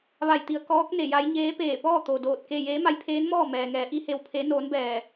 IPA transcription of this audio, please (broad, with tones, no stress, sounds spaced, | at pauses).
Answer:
ʋ a˧˩ j t̪ i˩˧ ə̯ k ɔː˧˥ k̚ n e˧˩ j a˧˥ j ɲ eː˧˥ p eː˧˩ p ɔː˥˨ t̪ o˩ d oː˧˩ t̚ k e˥˨ j eː˧˥ m a˧˥ j pʰ eː˧˥ n m ɔː˥˨ m ɛː˩ ŋ ɛː˩˧ ʔ i˧˥ h e˧ w pʰ e˧˥ n oː˧˥ n b ɛː˧˩